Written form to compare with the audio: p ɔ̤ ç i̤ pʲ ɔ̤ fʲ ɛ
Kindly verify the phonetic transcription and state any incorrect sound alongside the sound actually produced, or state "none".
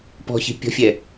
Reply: none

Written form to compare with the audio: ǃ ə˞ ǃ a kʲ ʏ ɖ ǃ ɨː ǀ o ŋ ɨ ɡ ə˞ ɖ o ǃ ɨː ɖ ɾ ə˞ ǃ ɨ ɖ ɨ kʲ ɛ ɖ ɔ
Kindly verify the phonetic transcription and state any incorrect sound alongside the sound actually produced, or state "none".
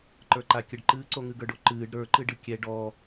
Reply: ʏ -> ə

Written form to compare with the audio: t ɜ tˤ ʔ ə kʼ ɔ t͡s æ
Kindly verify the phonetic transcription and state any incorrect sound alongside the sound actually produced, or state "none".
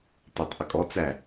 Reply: ɜ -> æ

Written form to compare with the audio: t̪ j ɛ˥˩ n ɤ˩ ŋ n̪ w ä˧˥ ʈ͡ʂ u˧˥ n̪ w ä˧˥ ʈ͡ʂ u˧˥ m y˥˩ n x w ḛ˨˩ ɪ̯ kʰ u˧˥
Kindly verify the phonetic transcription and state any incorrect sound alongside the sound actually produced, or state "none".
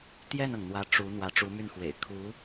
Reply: none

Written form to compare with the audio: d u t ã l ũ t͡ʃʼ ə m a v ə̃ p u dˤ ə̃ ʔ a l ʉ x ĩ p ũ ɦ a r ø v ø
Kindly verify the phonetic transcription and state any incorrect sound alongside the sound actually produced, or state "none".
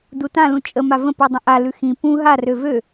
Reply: none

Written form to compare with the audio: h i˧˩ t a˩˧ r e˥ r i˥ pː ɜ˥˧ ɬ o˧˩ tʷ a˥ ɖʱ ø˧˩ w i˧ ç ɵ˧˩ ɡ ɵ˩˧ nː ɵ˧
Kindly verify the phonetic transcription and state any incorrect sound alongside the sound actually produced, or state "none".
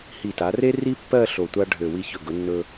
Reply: none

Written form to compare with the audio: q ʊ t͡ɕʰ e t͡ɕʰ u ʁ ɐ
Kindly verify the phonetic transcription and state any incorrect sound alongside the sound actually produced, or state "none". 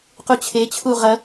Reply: ʊ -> u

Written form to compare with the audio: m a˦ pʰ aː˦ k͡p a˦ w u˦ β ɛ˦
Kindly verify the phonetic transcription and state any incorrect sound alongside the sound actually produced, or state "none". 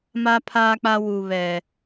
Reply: none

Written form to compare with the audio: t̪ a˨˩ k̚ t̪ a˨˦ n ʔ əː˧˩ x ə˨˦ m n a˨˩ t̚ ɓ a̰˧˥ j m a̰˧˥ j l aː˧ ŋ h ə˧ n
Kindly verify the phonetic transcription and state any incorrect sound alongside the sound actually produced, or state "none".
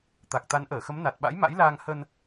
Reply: none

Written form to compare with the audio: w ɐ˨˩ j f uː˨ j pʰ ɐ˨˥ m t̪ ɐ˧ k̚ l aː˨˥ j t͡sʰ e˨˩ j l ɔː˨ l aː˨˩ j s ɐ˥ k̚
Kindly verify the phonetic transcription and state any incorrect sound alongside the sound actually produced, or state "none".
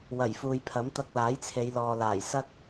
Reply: e˨˩ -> e˨˧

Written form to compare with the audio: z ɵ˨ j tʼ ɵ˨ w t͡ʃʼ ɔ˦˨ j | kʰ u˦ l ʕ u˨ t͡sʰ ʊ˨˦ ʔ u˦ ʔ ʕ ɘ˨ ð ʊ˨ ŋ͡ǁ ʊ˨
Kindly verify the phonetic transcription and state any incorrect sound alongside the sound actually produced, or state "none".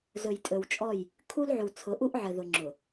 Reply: none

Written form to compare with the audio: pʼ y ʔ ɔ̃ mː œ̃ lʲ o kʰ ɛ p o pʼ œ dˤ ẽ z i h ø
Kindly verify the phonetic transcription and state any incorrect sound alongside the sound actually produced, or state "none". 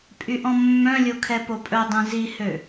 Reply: none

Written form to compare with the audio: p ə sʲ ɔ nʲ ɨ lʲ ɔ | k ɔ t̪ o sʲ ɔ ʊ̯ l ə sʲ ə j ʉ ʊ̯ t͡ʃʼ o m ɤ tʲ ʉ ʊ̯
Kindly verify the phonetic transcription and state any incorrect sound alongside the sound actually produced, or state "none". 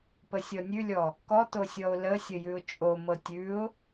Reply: ɨ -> ʉ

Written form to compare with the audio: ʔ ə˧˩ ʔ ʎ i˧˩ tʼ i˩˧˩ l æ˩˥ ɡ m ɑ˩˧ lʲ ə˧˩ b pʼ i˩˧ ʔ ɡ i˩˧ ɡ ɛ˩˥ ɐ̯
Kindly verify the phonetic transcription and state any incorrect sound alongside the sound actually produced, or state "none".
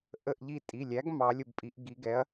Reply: l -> lʲ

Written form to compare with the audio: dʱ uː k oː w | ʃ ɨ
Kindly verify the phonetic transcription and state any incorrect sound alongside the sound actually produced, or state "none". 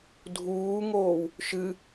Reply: k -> ŋ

